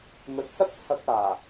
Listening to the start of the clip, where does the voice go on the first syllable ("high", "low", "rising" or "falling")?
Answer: rising